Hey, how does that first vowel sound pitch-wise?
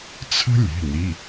high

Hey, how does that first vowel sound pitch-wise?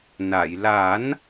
low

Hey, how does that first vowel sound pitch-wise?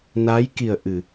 rising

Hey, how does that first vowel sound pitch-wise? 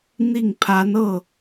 falling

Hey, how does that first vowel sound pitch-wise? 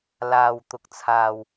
low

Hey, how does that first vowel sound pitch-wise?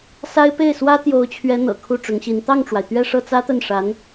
high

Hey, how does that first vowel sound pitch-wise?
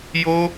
high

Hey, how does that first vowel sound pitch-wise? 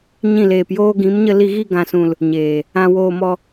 falling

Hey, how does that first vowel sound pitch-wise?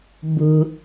low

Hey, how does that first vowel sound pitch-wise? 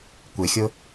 low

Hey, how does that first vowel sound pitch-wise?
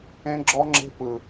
high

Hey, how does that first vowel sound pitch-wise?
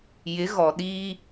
rising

